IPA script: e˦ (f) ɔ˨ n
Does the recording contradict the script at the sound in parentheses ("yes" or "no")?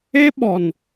yes